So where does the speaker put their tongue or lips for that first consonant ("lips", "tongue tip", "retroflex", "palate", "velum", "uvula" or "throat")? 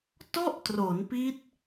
tongue tip